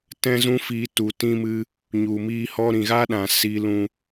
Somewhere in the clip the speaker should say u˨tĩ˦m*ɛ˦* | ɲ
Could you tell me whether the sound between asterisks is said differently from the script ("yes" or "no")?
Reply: yes